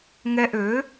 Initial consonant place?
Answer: velar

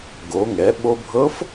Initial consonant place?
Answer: velar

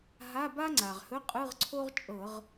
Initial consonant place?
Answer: glottal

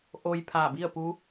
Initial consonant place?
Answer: glottal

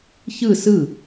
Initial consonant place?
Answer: palatal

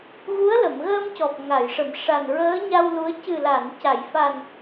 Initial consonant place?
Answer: velar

